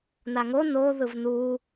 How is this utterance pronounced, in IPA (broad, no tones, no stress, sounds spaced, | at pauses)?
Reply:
n a ŋ o n o ð ɯ v n u